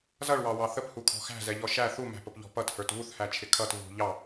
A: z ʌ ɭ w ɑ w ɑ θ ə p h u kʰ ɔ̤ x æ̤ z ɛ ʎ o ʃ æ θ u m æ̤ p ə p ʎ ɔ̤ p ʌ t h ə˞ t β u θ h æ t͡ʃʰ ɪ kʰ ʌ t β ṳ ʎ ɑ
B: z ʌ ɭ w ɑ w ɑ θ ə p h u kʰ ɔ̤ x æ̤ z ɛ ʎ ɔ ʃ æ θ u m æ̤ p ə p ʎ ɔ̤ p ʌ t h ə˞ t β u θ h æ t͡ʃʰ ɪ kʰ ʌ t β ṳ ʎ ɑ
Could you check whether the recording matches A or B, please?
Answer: B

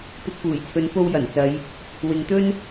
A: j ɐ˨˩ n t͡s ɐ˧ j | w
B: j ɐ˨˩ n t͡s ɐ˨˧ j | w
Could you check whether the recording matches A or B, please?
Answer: B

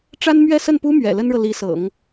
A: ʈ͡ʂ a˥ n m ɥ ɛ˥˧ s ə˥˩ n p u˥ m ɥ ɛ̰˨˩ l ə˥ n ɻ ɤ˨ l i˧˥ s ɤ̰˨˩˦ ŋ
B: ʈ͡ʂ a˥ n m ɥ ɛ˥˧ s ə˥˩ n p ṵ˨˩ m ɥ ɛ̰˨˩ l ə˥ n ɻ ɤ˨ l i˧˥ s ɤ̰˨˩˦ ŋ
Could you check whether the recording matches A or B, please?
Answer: A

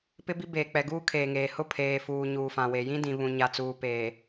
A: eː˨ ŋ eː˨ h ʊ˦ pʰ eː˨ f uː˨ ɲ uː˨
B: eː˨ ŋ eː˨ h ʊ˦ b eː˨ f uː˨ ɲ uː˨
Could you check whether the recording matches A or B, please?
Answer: A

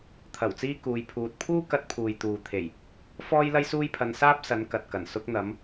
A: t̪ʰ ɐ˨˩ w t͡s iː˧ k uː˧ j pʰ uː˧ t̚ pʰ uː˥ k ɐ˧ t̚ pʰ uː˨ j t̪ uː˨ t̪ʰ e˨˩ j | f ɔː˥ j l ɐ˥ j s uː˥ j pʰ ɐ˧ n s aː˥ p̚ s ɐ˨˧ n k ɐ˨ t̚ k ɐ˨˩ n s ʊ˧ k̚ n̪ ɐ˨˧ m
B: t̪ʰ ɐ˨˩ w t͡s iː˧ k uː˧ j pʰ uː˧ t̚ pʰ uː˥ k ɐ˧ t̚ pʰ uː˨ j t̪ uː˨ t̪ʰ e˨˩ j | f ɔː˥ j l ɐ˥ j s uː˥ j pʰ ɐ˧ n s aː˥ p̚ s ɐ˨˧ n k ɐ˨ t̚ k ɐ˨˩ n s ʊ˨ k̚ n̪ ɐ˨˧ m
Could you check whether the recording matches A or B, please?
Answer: A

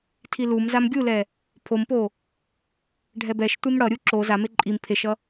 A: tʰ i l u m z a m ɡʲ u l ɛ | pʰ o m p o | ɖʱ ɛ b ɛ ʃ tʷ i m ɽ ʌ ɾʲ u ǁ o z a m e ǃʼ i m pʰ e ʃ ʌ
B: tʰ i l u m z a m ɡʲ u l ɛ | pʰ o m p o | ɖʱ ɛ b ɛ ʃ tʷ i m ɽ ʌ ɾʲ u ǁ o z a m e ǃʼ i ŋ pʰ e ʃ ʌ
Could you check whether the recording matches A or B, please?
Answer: A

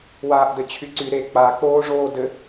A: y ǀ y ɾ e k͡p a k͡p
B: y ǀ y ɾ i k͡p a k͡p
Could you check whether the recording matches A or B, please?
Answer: A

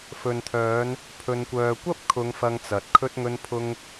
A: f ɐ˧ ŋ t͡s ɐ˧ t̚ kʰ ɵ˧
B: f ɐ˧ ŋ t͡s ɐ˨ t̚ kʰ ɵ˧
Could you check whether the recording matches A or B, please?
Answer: B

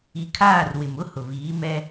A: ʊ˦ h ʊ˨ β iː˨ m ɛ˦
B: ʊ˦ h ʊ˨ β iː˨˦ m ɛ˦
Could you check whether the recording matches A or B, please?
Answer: B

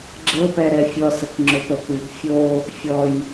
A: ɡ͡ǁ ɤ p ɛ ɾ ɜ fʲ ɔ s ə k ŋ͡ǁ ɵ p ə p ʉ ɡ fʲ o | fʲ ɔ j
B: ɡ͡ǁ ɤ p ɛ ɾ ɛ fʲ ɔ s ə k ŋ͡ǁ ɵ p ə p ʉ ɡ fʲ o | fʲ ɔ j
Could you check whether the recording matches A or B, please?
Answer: B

